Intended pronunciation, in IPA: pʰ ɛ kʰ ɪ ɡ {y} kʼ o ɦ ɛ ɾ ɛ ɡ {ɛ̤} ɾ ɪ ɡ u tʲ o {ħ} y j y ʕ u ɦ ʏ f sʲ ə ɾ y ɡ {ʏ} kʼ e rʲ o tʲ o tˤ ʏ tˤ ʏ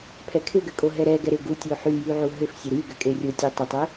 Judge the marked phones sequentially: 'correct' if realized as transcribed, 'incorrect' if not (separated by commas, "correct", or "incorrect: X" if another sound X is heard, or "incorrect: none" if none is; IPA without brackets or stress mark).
incorrect: ʏ, incorrect: ɛ, correct, correct